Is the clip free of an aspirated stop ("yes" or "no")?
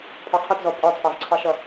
no